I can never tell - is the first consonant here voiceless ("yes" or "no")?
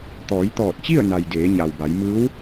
yes